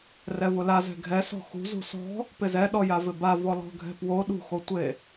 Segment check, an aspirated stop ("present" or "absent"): absent